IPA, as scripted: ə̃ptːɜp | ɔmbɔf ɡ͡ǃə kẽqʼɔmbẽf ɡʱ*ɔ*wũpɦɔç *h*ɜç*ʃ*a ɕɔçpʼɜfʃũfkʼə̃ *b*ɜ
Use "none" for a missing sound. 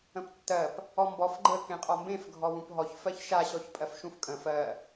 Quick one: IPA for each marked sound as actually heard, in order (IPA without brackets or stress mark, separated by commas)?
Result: ɔ, f, ʃ, f